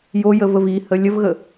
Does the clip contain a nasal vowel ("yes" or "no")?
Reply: no